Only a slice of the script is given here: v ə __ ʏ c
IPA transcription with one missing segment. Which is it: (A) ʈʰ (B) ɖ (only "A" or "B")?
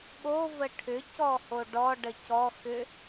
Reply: A